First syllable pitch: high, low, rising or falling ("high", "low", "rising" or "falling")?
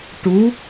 rising